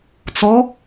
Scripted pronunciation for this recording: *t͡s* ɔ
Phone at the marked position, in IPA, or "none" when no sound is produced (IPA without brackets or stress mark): t͡s